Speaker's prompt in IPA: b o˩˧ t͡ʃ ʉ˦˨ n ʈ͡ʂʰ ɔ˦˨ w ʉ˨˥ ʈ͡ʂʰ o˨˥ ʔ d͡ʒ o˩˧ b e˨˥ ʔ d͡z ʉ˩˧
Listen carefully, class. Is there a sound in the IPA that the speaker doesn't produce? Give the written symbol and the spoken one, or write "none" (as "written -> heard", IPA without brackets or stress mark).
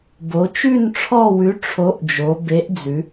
none